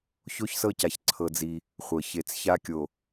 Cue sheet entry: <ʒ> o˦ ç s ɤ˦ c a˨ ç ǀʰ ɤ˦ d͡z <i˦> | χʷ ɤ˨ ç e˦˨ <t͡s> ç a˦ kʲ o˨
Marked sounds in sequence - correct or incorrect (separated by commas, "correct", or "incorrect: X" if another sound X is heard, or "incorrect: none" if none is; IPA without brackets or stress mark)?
incorrect: ç, correct, correct